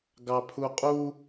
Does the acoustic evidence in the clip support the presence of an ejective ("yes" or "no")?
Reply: yes